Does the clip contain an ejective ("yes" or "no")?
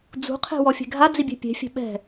no